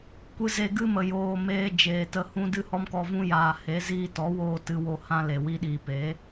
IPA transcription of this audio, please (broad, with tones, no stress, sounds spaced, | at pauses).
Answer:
kʷ ɨ˧ z e˧ ɡ ɨ˦ m ə˨ j oː˨ m eː˧ d͡ʒ eː˨ t ə˧ h ũ˦ d ɨ˦ h ɔ˦ m k ɔ˧ v ũ˦ j aː˨ h e˨˦ z iː˧ t ɔ˨˦ w oː˧ t ɨ˧ w o˧ h ã˦ l e˨ w i˧ ɗ iː˨ p e˨˦